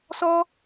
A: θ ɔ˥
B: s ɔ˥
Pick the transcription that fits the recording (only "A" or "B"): B